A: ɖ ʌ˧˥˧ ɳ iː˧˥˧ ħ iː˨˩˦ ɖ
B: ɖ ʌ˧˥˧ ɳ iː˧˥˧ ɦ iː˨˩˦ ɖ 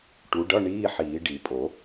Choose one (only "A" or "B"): A